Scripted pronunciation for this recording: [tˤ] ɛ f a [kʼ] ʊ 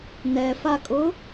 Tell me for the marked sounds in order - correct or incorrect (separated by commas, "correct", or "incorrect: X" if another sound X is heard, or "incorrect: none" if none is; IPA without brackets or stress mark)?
incorrect: n, correct